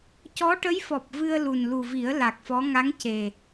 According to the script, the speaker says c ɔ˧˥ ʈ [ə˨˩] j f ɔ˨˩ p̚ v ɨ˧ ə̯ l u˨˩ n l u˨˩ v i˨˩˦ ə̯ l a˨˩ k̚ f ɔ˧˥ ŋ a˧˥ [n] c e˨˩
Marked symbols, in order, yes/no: no, no

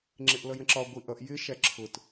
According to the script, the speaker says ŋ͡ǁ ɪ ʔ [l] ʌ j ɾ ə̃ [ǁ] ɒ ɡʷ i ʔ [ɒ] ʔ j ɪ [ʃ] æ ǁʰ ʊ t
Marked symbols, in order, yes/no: yes, yes, no, yes

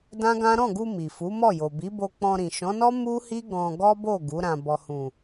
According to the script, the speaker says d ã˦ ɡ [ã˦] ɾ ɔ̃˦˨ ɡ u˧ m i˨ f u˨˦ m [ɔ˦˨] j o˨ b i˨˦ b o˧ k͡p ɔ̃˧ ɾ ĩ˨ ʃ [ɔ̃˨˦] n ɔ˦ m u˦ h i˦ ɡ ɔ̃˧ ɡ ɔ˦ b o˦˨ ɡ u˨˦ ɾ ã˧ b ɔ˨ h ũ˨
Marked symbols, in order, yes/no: yes, yes, yes

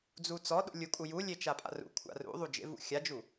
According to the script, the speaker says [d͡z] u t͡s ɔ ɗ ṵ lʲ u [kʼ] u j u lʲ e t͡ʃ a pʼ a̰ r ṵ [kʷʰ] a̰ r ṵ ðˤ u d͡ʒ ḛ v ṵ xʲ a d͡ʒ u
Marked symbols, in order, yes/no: yes, yes, yes

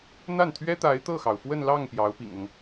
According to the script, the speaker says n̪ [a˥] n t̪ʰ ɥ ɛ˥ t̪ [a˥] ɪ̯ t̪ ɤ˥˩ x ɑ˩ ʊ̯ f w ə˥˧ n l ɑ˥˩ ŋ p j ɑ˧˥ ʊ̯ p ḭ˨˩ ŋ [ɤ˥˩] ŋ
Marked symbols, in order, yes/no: no, no, no

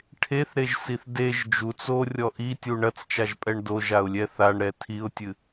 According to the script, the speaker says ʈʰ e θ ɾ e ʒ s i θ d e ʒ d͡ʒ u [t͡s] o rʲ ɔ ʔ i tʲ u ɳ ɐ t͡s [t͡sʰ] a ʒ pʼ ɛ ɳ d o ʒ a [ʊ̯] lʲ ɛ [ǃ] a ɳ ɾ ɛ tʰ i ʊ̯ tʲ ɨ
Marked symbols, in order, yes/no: yes, no, yes, no

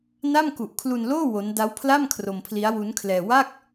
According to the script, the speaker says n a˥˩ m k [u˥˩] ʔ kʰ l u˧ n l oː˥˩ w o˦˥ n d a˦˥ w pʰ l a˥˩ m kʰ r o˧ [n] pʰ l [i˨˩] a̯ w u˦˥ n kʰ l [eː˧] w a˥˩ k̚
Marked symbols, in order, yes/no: no, no, no, no

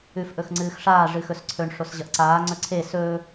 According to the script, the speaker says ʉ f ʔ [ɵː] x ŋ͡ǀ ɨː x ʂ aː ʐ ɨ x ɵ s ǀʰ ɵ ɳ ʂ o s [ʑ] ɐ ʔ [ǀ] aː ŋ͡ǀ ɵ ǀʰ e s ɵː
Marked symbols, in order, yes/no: no, yes, yes

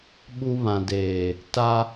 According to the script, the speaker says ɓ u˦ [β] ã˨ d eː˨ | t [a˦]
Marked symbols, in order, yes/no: yes, yes

